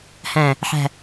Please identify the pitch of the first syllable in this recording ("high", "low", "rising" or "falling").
low